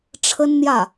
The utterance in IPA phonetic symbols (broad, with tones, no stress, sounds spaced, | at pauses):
ʈ͡ʂʰ ə˥ n n̪ j ä˥˩